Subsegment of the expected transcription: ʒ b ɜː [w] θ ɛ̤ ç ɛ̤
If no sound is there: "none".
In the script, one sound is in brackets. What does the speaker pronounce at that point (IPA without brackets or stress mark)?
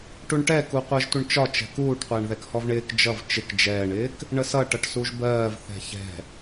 v